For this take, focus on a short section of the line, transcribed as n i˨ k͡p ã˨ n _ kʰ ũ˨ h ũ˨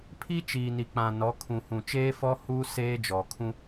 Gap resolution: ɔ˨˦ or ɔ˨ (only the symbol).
ɔ˨˦